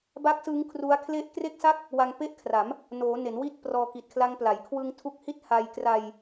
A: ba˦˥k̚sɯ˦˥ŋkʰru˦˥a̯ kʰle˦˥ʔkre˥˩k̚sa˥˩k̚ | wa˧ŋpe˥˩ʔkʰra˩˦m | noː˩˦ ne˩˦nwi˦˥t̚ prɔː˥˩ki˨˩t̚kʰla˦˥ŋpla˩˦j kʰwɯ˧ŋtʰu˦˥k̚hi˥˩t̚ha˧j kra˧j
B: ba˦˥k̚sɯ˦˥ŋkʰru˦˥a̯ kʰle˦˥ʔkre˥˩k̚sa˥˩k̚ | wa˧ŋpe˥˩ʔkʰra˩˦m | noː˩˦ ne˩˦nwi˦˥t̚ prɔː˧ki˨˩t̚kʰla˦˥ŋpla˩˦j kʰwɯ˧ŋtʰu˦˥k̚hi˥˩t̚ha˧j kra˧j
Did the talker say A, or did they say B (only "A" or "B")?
B